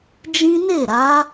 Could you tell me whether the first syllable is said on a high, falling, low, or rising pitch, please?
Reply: high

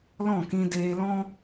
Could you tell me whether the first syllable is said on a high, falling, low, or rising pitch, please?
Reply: falling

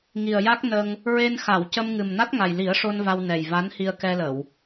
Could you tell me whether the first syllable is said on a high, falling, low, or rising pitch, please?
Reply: low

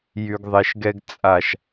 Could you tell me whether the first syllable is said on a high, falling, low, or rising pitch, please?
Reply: low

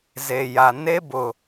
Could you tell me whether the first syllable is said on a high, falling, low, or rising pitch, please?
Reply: low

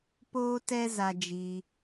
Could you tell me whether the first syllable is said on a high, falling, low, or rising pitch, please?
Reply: high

